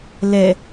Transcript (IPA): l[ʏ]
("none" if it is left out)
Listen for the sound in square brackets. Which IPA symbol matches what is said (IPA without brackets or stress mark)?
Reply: ɛ